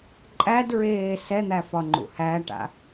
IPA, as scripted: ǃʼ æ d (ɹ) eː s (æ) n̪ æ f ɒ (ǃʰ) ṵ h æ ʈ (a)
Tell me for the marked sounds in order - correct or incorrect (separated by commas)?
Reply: correct, incorrect, incorrect, incorrect